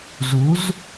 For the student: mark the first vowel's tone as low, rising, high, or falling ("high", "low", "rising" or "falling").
rising